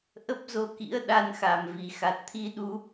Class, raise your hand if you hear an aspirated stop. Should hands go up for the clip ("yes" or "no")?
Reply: yes